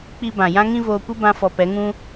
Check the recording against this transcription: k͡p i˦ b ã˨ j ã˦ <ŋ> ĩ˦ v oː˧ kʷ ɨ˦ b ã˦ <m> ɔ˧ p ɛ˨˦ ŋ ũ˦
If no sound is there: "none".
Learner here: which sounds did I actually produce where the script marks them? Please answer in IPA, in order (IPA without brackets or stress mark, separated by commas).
ŋ, f